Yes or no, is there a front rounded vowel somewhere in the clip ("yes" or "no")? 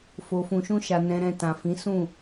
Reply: no